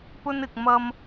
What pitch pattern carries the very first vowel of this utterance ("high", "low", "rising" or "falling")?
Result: high